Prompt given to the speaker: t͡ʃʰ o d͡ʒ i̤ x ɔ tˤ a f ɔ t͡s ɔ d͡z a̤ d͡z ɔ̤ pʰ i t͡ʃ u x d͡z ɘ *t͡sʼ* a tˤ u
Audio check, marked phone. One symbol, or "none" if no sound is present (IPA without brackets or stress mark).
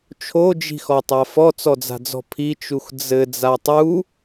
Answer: d͡z